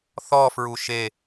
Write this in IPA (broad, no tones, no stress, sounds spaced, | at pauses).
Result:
θ ɔ f ɹ u ʃ e